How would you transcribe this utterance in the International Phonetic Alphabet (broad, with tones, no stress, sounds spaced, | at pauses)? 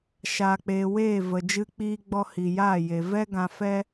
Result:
ʃ aː˨ k͡p eː˨ w eː˦˨ v ə˨ d͡ʒ ɨ˧ k͡p iː˧ ɡ͡b ɔ˧ h i˨ j aː˦˨ j e˨ v ɛ˦ ɡ ã˦ f ɛ˦